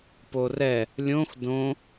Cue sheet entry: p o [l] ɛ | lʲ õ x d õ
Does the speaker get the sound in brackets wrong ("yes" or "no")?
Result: yes